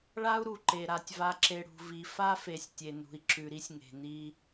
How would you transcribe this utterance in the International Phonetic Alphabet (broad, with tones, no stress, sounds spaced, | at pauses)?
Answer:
ɭ a˦ u̯ ɾ u˨ ǃ e˨ ɾ a˨ tʲ v a˨ ǁ e˨ ɽ ṳ˨ v i˨ f a˦ f e˨ sʲ tʲ e˨ n ṳ˨ i̯ ǁ ʉ˨ ɾ i˦ sʲ ŋ e̤˨ n i˦